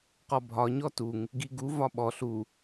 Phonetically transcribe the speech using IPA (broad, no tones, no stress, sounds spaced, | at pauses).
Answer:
q ɔ bʱ ɒ ɲ ɔ t u ŋ | ɡ i ɡ u v ɒ ɓ ɔ ɬ u